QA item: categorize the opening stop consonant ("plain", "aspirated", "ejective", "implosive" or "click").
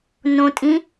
ejective